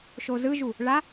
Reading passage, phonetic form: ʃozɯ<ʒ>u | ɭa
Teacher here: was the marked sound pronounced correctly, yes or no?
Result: yes